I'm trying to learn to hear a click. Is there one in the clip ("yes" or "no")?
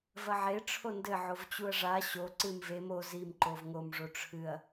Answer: yes